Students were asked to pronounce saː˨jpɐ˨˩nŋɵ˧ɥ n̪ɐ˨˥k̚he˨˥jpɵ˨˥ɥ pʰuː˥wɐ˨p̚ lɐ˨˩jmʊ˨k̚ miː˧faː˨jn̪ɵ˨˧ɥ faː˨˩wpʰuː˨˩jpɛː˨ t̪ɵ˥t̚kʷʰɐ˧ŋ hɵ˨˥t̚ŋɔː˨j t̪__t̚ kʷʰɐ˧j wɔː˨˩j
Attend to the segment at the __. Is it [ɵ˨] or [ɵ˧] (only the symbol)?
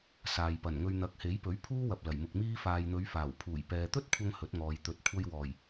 ɵ˨